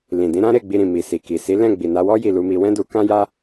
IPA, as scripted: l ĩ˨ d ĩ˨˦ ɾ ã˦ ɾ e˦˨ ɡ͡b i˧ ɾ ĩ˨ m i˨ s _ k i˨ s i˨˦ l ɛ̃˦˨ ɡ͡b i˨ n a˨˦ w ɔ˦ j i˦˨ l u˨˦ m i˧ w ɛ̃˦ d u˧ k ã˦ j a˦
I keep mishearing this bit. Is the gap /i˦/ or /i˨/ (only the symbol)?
i˨